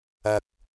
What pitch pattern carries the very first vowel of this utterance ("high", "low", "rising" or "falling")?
low